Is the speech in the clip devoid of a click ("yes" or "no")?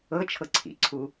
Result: no